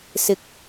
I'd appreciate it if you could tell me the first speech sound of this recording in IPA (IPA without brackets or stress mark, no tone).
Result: s